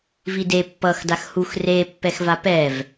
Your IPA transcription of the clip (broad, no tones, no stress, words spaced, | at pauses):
vide pːʌx daxhux re pːɛxvapɛv